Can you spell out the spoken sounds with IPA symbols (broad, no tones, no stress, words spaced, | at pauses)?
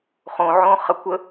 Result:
χõʕõ χɐkʷə